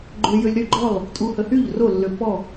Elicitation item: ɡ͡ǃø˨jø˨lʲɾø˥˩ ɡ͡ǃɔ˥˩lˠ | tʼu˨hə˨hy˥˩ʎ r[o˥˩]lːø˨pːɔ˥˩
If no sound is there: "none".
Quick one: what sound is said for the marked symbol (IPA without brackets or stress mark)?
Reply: o˥˩